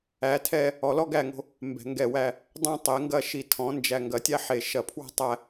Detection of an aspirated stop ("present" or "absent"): present